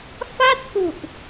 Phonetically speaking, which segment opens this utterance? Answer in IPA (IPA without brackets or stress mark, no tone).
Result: f